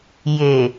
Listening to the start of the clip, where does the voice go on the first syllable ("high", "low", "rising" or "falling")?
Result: low